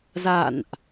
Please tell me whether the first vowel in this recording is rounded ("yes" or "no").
no